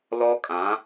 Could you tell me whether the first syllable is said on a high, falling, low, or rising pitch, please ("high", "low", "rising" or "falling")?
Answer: high